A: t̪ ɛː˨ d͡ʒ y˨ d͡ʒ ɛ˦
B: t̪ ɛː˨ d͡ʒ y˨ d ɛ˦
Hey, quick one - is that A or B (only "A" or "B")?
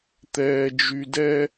B